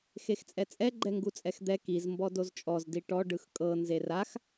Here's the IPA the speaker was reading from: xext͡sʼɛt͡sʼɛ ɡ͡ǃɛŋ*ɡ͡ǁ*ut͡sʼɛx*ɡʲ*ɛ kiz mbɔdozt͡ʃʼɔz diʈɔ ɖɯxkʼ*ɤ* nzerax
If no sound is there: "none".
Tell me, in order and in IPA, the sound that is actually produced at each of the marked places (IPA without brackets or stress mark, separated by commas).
ɡ, d̪, ɤ